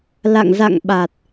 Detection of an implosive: present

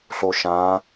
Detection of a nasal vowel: present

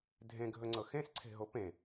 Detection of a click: present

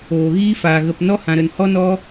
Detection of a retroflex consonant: absent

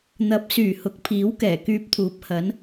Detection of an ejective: absent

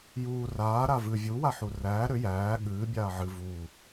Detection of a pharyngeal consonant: present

